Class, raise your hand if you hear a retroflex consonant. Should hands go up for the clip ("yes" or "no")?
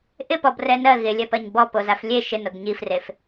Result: no